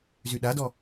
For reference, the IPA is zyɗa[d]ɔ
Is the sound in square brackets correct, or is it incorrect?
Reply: correct